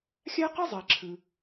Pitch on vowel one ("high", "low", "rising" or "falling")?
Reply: high